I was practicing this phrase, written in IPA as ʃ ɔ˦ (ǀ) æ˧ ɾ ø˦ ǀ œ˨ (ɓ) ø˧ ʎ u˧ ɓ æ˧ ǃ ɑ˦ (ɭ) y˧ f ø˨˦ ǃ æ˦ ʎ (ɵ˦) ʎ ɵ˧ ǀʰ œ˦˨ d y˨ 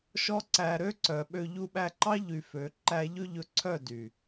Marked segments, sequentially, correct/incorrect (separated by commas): correct, correct, incorrect, correct